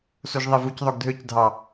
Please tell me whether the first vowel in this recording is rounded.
yes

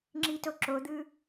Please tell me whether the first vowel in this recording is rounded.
no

